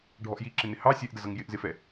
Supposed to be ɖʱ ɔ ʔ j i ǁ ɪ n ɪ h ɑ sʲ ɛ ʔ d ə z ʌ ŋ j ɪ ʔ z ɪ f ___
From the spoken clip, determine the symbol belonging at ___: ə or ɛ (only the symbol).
ɛ